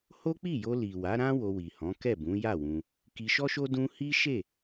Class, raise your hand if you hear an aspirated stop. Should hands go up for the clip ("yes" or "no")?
no